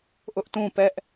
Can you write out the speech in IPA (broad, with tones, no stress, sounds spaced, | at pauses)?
ʔ ʊ˦ ʔ t ũ˦˨ p ɛ˦ ʔ